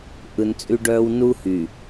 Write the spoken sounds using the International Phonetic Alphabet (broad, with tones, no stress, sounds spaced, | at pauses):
ʔ ɯ˨ n t͡sʼ y˦ ɖ œː˦ w n u˦ h y˨